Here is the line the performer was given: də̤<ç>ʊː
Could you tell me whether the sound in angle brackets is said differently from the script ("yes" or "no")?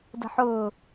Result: yes